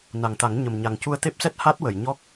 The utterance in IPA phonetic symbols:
n a˨˩ ŋ t̪ a˨˩˦ ŋ ɲ ə˨˩ m ɲ a˨˩ ŋ c u˧ ə̯ t̪ e˦˥ p̚ s ɛ˦˥ t̚ h a˦˥ t̚ w ə˨˩˨ j ɲ ɔ˦˥ k̚

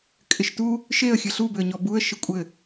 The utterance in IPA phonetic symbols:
kʼ ɪ ʃ t u | ʃ e ə̯ xʲ ɘ ɬ u b ʏ ə̯ ɲ ɔ b u ə̯ ʃ ɪ kʷʼ ɘ

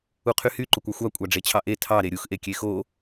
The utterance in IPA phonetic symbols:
u qʰ y h y ǃ o kʷ ɑ xʷ ɑ kʷʼ ɑ ɖ͡ʐ e t͡ɕʰ ɑ ʔ e tʰ ɑ ɾ e ɾʲ u x ʔ e kʲ e x o

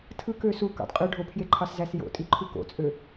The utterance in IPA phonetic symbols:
tʰ ɯ k ø s u k ɑ̰ d qʼ ø ɖʱ o pʰ j e ǃʰ ɑ s z æ s j o̰ tʼ i ǃʰ u k o̰ t͡sʼ ø

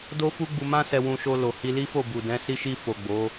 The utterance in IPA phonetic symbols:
d o˦ f u˦ ɡ͡b u˧ m ã˦ s ɛ˧ w ũ˧ ʃ o˧ l o˨ h i˧ l i˦ f o˦˨ b u˨ d ɛ̃˨˦ s i˧ ʃ i˧ f o˨ ɡ͡b o˨˦

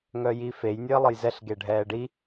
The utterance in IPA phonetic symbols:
ŋ œ j i f e j nʲ əː lˠ ə j z ɛ ɬ ɡ e ɖʱ ɛː ɖ i

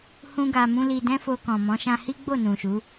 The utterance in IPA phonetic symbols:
h ũ˦ ɡ a˧ m ũ˦ l i˧ d ɛ̃˦ f o˧ k ɔ̃˨ m ɔ̃˨˦ ʃ ã˧ h i˦ ɡ͡b o˦˨ n ũ˨ ʃ u˨˦

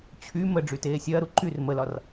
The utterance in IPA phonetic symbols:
t͡ɕʰ y m ə ɖ͡ʐ y t eː sʲ ɐː ɾ u ǃ y r m ə l ɒ r

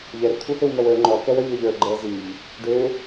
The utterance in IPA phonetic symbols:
ʎ ɛ r t̪ʰ u h ø w m œ w ə˞ ŋ͡ǃ ɔ k ɛ w œ ʎ ə˞ ʎ ə˞ ɡ͡ǃ ɛ z i ʎ | ɖ ø

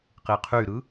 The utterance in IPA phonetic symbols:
q i qʰ y ɾ ɯ

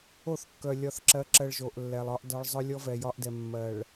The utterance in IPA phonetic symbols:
o˦˨ θ kː œ˨ lʲ ɒ˨ θ ǁ ɜ˨˦ ǁ ɜ˨ ɭ ʒ o˨ ʔ lː ɛ˨ lˠ ɒ˦ ʔ d ɒ˦ ɭ zˤ œ˦ lʲ ɔ˦ v ɛ˨ j ɒ˦ ʔ d ɛ˨ mː ɜ˨ ɭ

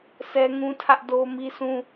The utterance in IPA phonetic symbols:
s ɛ˦ ŋ ũ˦ tʰ ä˦ ʔ d o˦ m i˦ s ũ˦

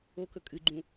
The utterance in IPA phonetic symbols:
o k ɵ kʼ ɨ ɡ͡ǃ ũ

